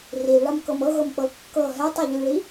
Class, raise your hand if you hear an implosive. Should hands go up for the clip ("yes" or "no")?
no